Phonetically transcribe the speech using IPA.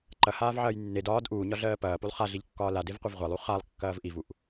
ǃɐhaːvʕɐːj nːed ɒːd ʔuːɲɒɮɜː pɐːpulˠ χaɮiʎkːɒː ladevqʷɐv ʁʷɐlˠu χalˠkːɐːv ʔivuʔ

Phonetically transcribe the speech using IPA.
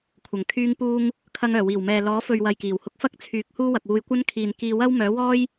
kʷʰɐ˨˩ŋ kʰyː˧ŋpuː˧ŋ | kʰɐ˧ŋœː˨˩wiː˨˩w mɛː˨ lɔː˨˥fɵ˨ɥ wɐ˨jkiː˨˩whʊ˧k̚fɐ˥k̚ t͡sʰyː˨˥k̚huː˥wɐ˨k̚wuː˧j kʷɐ˥nkʰiː˨nkiː˧ wɐ˥wmœː˨˥wɔː˥j

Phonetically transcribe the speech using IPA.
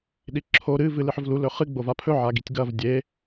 ɗiǁʰo ɾɨ vɨlɨħɵvlu lɵχɨ ɡ͡bovapʰɵ ʕaɡitʲɡɐv dʲe

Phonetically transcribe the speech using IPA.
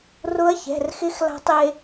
rʊ˧˥ɐ̯çɛ̤˩˧˩rxɪ˧˥x la̤˧tˤe˧

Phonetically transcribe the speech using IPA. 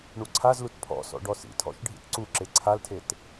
ɳuǀʰazlut pʰɔ̰sɔ̰ ɖɔsḭtʰɔ̰ʃ ɖʱḭtǀuǁe ǀʰaltʰet

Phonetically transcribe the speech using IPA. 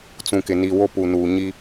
t͡sũ˨ kɪ˨ ni˨ wo˦˨pu˨nuː˨ɲi˦

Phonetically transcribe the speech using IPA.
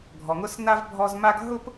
ɡʱɔ˩ŋʊ˥sna˥v bʱɔ˧z ma˥ɡ ɦʊ˥p

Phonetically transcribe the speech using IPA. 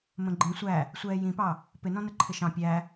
mə̃ɡ͡ǃĩ sʷæ | sʷɛːjĩpɑ | pɪnɔ̃nə ǃʰɪʃɑ̃ pʲæ

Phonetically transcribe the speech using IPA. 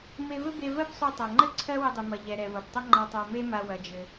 me˧vɘ˥be˧ vɜ˥bsˤu˧tˤa˩ŋ͡ǃɘ˥ ǀʰɜ˥wɘ˧dˤɨ˩mɐ˩ ʎɛ˩ɾɛ˩vɐ˩btˤɐ˥ ŋ͡ǃa˧tˤa˧me˥ma˧ wɐ˩d͡ʒɘ˩

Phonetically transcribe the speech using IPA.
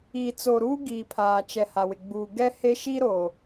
iː˨t͡so˨ɾuː˦ ɡi˨pʰaː˨t͡ʃɛ˨ ha˨wɪ˨ ɡ͡buː˨ɡɛ˦he˦ ʃi˦ɾo˨

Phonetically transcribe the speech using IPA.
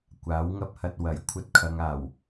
kʷaː˨˥wŋɐ˥p̚hɐ˧t̚ wɐ˨˩j kʷʰɐ˥t̚kʰɐ˨˧ŋaː˨˩w

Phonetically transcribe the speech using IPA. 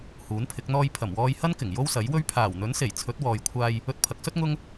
huː˨˥npʰɪ˨˥k̚n̪ɔː˥j pʰɐ˨˩mwɔː˧jhɐ˥nkɪ˨˩ŋ jo˥wsɐ˨˥jwɵ˥ɥ pʰaː˨˩wn̪ɵ˨˥nse˨˩j t͡sʰɵ˨˥t̚wɔː˨jkʷʰaː˧j | ɵ˧t̚pʰɐ˨˥k̚sɵ˥t̚ ŋʊ˥ŋ

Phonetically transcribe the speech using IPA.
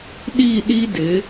ɗi˥˧ ɗi˥ dɪ˩˧

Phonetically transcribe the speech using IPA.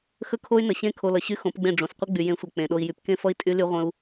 xə˦kʰo˦y̯nə˨ɕẽ˦ kʰo˧lʌ˨ ɕy˦xõ˨˦pɡ͡bẽ˦˨ ɖ͡ʐõ˨sqʷə˦ ɡ͡by˨jẽ˨˦sʷʌ˨ k͡pẽ˨ɗo˧i̯ jy˨pkẽ˦fʌ˦i̯ tʼy˦ly˦ ʁʷə̃˦u̯

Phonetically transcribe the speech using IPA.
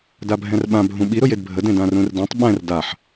dabʱɛ̃rɓã bʱũɓi ɾʊjedbʱə dẽdãrũrdẽtˤ ɓɛ̃r daħ

